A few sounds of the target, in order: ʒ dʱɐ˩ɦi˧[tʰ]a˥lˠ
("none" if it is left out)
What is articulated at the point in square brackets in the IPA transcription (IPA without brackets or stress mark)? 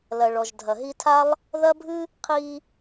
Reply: tʰ